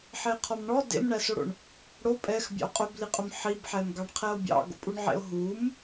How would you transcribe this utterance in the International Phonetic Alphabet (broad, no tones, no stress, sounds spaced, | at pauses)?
ħ e qʰ ɔ m ɳ ɔ d ḛ m ɳ æ s o ɽ o̰ ɳ | ɽ o pʼ ɛ x bʲ ɑ̰ o̯ qʼ ɵ b l i qʼ ɵ m ħ i b ħ ɛ m ɡ ɑ ɳ qʰ ɛ o̯ bʲ ɑ̰ ɡ o̰ pʼ u ɳ ʕ ḛ o̯ ɦ u m